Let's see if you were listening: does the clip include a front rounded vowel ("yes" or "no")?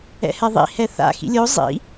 no